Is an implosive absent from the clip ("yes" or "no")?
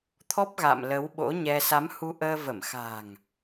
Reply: no